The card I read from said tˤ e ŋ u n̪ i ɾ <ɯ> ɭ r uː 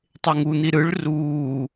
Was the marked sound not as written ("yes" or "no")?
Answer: no